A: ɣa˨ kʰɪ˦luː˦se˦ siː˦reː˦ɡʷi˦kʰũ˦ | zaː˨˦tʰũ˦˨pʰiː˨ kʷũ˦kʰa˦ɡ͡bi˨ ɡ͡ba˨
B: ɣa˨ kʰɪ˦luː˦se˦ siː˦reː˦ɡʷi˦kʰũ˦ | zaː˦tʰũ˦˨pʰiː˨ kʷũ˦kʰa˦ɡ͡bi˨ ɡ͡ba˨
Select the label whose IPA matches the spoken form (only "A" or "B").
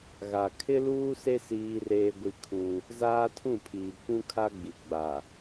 B